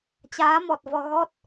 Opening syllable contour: rising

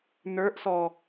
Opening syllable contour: rising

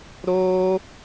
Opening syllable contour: high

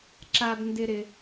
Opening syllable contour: high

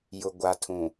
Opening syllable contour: low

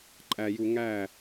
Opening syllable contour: low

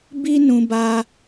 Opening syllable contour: high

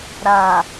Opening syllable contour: low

